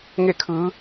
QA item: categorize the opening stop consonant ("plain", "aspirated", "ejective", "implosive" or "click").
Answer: aspirated